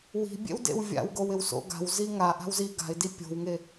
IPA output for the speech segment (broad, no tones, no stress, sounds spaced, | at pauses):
w i̤ bʲ ḛ w d ḛ w vʲ a̰ w ɡ o w ɪ w s o̰ ɡ a̤ w z i ŋ a ʔ a̤ w z i ɡ a̤ ɪ̯ d i pʲ o̤ w ŋ e